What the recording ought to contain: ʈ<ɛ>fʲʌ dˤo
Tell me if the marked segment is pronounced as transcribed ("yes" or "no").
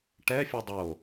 yes